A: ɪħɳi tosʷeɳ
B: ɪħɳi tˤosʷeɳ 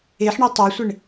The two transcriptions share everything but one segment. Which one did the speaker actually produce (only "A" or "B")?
B